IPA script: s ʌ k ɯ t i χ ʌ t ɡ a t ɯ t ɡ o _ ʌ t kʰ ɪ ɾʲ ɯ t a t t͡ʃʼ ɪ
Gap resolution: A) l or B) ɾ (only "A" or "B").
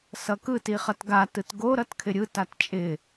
B